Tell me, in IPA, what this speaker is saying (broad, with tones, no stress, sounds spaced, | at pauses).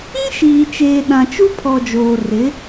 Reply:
ĩ˦ ʃ iː˨ t͡ʃ eː˨ ɗ ã˨ t͡ʃ u˦ pʰ ɔ˨ d͡ʒ oː˨ r ɪ˨˦